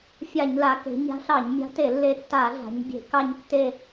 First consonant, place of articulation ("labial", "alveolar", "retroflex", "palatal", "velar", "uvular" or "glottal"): labial